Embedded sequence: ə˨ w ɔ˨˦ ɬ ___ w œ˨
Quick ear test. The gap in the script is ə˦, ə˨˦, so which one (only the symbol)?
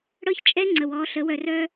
ə˨˦